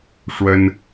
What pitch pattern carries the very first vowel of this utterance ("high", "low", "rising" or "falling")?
high